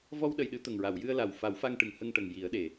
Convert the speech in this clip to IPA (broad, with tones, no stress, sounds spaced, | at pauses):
v ɔ˧ w ɗ ə˨˩ j ɗ ɨ˨˩˦ t̪ ə˨˩ ŋ ɹ a˨˩˨ w j ɨ˧ ə̯ l a˨˩ w f a˨˩˦ w f a˧ ŋ ʈ ɨ˨˩ ŋ h ə˧ ŋ ʈ ə˨˩ ŋ j i˨˩˦ ə̯ ɗ e˨˩